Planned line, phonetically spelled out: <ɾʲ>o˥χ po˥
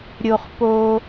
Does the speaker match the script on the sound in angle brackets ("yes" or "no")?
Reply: yes